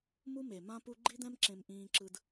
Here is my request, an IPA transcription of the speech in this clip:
m u˦ m e˨ m ã˦ p u˧ ɡ͡ǃ i˦ d̪ ɛ̃˦ m ǁ ẽ˧ m ʔ ĩː˧ ǁ ɯ˧ d

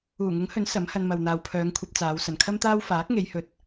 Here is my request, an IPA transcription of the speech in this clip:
uː˨˩ ŋ ʊ˨˥ ŋ h ɵ˨˥ n s ɐ˨˥ m h ɐ˧ n m ɐ˨ w n̪ aː˨ w pʰ œː˨˧ ŋ kʷʰ ɐ˧ p̚ t͡s aː˨˧ w s ɐ˨˩ n kʰ ɐ˥ m t̪ aː˥ w f aː˨˥ k̚ ŋ e˨˧ j h ɵ˨ t̚

